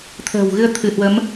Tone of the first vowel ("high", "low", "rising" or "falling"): low